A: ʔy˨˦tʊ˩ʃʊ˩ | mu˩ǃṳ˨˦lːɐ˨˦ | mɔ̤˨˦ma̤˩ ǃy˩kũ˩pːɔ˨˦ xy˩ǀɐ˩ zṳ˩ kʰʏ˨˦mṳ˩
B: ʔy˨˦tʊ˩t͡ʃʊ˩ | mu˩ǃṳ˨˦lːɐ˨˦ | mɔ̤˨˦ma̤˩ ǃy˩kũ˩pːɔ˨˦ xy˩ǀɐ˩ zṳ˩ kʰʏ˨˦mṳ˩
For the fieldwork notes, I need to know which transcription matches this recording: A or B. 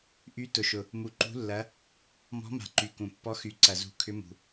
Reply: A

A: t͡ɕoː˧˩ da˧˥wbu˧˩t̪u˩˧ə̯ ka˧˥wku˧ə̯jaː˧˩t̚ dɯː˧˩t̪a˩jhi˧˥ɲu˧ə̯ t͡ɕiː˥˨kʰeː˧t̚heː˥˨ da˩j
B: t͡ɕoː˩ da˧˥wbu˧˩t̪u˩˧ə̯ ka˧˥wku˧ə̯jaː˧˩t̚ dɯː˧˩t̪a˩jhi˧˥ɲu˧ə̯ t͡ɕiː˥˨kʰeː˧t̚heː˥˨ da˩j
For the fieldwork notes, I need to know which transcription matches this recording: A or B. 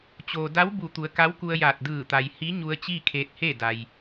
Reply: B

